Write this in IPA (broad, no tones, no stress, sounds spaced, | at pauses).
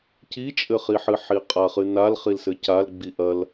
c i t͡ʃʼ ɘ χ i ħ ɨ ħ i qʼ a χ ɨ n a l χ i l s ɘ c a l ɡ͡b i ʔ ɐ l